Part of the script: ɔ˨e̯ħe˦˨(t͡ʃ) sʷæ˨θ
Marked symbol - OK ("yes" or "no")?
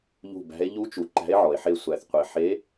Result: no